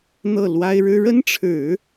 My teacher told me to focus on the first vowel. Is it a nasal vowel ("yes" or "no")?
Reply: no